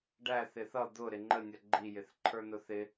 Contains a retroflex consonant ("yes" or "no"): yes